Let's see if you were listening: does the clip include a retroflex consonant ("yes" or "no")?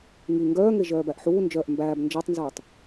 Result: no